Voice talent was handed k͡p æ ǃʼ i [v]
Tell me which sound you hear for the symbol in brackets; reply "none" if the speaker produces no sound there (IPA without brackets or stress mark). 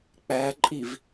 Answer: v